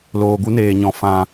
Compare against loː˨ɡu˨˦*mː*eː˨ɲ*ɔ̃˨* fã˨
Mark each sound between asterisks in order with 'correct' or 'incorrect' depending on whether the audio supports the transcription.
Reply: incorrect, correct

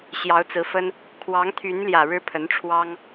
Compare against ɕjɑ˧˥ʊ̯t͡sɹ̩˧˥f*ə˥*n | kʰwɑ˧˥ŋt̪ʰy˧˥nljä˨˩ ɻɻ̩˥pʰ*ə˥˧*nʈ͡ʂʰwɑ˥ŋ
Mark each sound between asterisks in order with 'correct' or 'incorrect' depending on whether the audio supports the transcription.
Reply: correct, incorrect

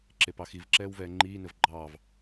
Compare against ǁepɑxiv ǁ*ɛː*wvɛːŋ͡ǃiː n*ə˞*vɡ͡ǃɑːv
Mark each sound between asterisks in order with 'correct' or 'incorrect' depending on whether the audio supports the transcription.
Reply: correct, incorrect

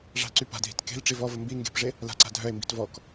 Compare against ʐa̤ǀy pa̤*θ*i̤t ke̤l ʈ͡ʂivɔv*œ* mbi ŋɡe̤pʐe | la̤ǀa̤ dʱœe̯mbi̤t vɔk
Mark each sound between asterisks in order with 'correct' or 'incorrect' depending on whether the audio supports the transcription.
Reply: incorrect, incorrect

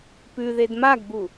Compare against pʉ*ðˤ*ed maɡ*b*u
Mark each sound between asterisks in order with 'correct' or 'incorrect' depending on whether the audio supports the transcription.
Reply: incorrect, correct

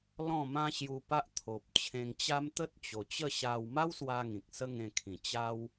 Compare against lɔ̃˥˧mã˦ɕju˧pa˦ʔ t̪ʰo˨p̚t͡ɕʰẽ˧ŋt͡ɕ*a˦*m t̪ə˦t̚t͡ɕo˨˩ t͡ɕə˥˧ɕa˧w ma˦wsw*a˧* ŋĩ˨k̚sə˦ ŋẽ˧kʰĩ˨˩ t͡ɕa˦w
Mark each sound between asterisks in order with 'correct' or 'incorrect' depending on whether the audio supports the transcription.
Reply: correct, correct

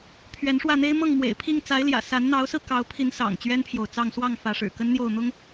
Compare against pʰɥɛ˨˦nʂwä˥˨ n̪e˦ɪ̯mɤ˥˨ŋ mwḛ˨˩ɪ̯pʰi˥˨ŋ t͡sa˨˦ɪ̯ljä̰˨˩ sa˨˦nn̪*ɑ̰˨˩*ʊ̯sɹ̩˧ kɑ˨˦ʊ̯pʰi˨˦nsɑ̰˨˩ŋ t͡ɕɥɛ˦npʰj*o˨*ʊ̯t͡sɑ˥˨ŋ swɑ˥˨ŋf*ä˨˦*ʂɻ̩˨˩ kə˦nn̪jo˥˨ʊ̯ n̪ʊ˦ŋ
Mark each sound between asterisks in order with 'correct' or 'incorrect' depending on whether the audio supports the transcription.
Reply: incorrect, correct, correct

